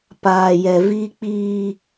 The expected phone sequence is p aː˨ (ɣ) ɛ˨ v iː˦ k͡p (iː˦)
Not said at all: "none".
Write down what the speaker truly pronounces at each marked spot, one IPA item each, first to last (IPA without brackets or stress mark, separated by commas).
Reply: j, iː˦